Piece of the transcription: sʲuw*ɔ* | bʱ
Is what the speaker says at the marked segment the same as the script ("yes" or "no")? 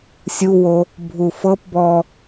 no